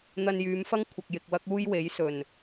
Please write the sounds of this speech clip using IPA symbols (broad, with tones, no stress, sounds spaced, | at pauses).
n̪ ɐ˧ n j yː˨˧ m f ɐ˥ ŋ kʷʰ ɐ˨ k̚ j ɪ˨ k̚ w ɐ˥ k̚ uː˥ j w e˨˥ j s ɵ˨˩ n